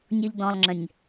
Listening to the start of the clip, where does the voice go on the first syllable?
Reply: high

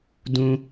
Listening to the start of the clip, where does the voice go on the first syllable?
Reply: high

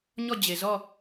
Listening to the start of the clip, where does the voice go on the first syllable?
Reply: falling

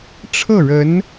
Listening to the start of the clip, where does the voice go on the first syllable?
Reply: falling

